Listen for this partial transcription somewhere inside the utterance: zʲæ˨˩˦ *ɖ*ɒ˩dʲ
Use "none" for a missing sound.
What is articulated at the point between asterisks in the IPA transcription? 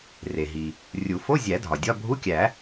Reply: dʱ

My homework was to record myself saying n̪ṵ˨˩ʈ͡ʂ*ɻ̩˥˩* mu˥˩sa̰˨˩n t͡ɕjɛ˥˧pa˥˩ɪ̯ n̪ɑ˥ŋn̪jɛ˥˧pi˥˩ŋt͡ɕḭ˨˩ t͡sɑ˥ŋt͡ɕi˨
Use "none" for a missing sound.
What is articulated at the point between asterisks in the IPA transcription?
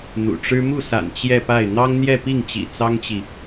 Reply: ɻ̩˥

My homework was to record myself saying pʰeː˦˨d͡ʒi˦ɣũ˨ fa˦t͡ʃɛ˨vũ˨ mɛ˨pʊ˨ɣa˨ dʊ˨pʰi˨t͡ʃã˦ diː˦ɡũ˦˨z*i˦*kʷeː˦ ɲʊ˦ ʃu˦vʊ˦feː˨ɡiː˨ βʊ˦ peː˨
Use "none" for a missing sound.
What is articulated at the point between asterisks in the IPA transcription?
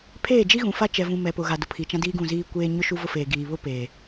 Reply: iː˦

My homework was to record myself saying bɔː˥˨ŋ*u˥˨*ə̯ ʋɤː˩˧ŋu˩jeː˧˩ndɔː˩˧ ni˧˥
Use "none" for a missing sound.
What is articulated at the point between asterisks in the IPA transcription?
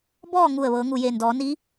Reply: u˧˩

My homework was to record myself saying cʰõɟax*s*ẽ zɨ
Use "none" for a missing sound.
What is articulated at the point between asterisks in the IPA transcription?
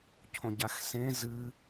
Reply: s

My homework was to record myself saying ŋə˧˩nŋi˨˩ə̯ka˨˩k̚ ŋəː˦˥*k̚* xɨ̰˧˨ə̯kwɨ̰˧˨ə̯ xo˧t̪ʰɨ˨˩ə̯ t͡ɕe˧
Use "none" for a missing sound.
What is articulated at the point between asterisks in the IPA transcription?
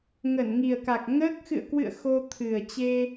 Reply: k̚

